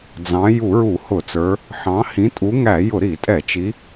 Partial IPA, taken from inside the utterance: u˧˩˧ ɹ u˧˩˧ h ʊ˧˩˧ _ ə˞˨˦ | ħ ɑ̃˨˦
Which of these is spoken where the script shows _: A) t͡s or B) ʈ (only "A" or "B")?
A